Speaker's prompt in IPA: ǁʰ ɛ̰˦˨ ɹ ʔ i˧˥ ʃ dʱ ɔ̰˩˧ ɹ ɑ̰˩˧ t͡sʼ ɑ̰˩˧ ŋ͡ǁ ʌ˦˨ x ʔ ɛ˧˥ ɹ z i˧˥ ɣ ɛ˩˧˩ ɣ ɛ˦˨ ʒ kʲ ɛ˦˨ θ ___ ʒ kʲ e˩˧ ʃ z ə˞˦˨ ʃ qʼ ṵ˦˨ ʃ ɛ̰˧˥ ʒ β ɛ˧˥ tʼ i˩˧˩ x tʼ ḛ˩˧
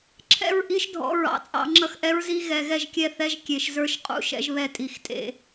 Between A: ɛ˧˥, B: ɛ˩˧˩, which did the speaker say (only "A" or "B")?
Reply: A